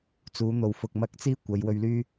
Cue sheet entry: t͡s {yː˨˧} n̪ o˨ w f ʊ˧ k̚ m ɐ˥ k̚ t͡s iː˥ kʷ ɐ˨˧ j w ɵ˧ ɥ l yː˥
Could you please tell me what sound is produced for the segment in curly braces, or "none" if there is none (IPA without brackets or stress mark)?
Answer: uː˨˧